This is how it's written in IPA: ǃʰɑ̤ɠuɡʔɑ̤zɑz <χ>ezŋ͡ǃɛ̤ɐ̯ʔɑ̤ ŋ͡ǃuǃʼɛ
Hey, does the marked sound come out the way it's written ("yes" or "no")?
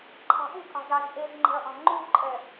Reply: no